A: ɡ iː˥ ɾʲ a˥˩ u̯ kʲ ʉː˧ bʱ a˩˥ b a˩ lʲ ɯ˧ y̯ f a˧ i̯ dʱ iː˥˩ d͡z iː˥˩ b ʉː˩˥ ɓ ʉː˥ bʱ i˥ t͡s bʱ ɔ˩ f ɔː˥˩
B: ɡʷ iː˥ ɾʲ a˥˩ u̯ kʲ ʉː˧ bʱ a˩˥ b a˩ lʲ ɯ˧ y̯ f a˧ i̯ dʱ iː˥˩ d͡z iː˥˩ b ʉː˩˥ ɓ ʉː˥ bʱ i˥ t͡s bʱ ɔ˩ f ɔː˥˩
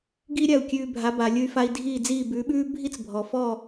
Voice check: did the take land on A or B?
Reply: A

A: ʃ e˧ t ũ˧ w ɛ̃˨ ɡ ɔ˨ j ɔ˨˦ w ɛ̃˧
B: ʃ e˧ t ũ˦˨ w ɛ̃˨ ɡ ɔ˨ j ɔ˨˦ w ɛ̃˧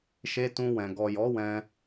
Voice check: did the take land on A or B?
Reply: A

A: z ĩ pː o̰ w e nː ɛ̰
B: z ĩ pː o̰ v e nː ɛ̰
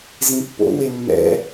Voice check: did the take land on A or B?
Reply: A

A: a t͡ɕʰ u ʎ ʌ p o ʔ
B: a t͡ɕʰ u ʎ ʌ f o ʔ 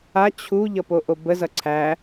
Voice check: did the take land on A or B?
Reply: A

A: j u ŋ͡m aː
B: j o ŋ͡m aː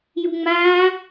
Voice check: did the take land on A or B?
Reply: A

